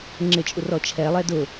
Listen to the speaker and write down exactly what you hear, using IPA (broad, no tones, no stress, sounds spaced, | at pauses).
ŋ͡ǁ ɪ t͡ʃʼ u r ɔ t͡ʃʰ ɛ lˠ ɛ d ʊ